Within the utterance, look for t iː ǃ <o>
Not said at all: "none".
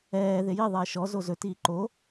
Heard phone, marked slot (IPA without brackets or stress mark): o